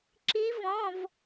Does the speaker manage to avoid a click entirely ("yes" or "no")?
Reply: no